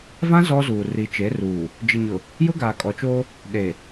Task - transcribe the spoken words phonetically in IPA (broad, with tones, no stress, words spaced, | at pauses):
vã˦ zɔ˦zuː˨ ri˨t͡ʃe˨˦ruː˨ | d͡ʒɪ˨ɲʊ˨ | jʊ˦ɡaː˨kʼɔ˨t͡ʃoː˦ | ɗe˨